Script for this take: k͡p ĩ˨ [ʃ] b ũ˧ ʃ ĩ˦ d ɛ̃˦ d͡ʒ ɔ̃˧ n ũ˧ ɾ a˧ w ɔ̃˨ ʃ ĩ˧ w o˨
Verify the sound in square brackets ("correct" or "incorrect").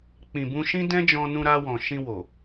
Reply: incorrect